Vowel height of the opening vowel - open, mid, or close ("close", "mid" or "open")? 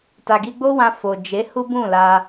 open